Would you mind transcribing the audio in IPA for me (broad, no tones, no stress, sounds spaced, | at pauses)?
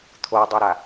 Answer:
t̪ʰ o dˤ ɯ ɾ a